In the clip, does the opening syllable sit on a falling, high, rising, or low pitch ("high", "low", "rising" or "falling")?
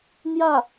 falling